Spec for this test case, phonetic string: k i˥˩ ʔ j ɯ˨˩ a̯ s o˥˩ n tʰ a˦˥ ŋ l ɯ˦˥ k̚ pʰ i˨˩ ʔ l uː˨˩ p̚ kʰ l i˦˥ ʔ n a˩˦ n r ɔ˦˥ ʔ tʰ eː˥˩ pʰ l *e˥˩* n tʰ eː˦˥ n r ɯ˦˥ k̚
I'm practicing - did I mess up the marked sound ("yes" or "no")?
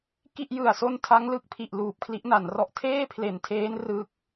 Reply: yes